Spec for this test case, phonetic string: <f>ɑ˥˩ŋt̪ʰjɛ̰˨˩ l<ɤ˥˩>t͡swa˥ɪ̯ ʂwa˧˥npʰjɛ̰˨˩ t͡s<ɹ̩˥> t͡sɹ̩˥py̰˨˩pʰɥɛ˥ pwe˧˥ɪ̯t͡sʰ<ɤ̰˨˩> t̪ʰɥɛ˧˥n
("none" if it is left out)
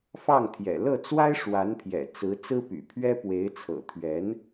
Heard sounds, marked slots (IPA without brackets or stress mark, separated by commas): f, ɤ˥˩, ɹ̩˧˥, ɤ̰˨˩